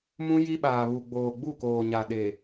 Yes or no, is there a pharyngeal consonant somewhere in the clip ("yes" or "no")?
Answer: no